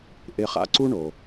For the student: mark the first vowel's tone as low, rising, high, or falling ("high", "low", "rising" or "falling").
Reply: high